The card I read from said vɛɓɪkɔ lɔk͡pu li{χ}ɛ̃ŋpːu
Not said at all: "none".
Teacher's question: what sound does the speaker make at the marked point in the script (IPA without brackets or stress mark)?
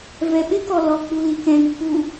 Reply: k